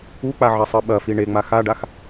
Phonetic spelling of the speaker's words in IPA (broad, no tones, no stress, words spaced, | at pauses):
uk͡pa ʕɐsˤɨɓɐfi ɳeŋ͡ma xaɖax